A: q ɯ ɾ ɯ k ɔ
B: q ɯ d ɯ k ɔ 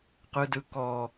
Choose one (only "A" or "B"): B